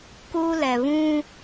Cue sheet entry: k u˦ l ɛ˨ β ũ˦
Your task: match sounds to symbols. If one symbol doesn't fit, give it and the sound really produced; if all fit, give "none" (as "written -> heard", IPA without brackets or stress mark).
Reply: none